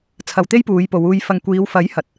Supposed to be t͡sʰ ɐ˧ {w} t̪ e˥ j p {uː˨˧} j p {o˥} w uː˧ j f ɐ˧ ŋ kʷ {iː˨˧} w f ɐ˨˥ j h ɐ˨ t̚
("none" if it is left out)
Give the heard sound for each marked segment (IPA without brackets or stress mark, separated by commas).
w, uː˨˧, o˨˧, iː˨˧